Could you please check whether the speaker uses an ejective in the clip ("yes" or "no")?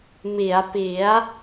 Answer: no